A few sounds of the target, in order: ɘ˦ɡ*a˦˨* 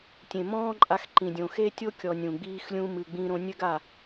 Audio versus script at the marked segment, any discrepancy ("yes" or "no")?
no